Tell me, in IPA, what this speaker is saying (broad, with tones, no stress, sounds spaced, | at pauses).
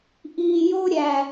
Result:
ʔ iː˨ j o˧ ɾʲ æ˨